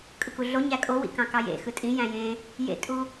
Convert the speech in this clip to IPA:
kʼɯkuɮo ɲækʼowḭ kɑ̃kɑjḛ xɯtʼĩ jæ̃jẽ | jḛtʼu

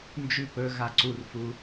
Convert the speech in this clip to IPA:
nd͡ʒʉ pɵɣa ǀurfu

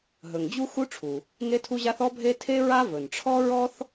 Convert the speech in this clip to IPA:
ɦɵ˩ŋd͡ʑu˥ xu˥ʈ͡ʂʰu˩ | ŋe˥tʰu˥ʑa˥θ ɔ˥bʱe˥ tʰe˥ɹa˥ vɵ˩nʈ͡ʂʰɔ˥ ɹɔ˥θ

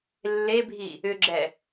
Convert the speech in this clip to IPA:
lːebʱi | ʏɡ͡ǁɛ

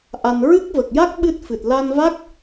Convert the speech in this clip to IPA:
ʔa˧n ɹɨ˦˥k̚və˨˩k̚ ja˦˥k̚ ɓɨ˦˥t̚fɨ˨˩t̚ la˧nva˦˥k̚

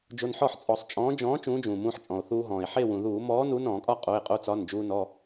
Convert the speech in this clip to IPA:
d͡ʒo˧nħɔ˥˨ħ t͡sʼɔ˧˩˧sˤt͡ʃʼɔ̃ː˨˥ d͡ʒɔ̃ː˨˥ t͡ʃũː˨˥d͡ʒũː˩mũː˧ħ t͡ʃʼɔ̃˩o̯ θuː˧ɦɔ̃ː˩e̯ ħe˥˨wũ˩ ðuː˧˩˧mɔː˨˥ nu˨˥nɔ̃ː˧˩˧kʼɒ˥˨ qʼo˩˧˩e̯qʼo˧t͡sɒ˩˧˩n d͡ʒuː˧nɔ˩˧˩

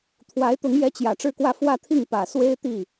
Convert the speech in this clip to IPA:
t̪ʰwa˧˥ɪ̯t̪ʊ˧˥ŋjɛ˧˥t͡ɕjä˨˩ ʈ͡ʂɻ̩˥˧kwä˥˧ fwä˥˧t̪ʰi˥˩ŋ pä˨˩ swe˥ɪ̯t̪i˥˩

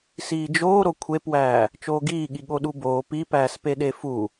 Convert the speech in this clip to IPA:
siːd͡ʒoː ɾokʷʰepwæː | t͡ʃoːɡiːɠi ɠoɗuboː pipæːspe ɗefu

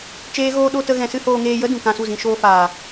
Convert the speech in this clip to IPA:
t͡ʃeː˦ɣoː˦ ɗo˦ tə˦ɣɛ̃˧sɨ˦ hoː˧ŋeː˧jə˦ dũ˨kã˧su˦˨zĩ˧ ʃoː˧faː˨

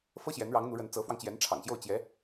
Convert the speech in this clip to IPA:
fɤ˥ɕjɛ˧˥nɻɑ˧˥ŋ n̪u˧˥ɻə˧˥n t͡sɤ˧˥fwɑ˧ŋt͡ɕjɛ˧˥n ʈ͡ʂʰɑ̰˨˩ŋɕjo˥˩ʊ̯ t͡ɕjɛ˧˥

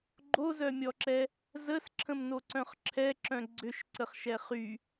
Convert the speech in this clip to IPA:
ɡ͡ǃozœmʲɔǁɛ | zəsǁʰə̃mnoǀœ̃χ ǁʰɛǁœ̃ ɡ͡ǀʏʃǀəχʃɛ χy

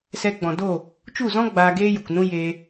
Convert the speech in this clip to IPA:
sɛ˧ɡ͡bɔ̃˨do˦˨ | t͡ʃu˦˨zɔ̃˦ ɡ͡baː˧ɡeː˦ju˨knũ˦ jeː˧

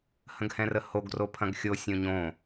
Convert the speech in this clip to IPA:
hə̃ɡhɛ̃rəhoɡ ropʰɐ̃ɡxʲo sʲõɲõ

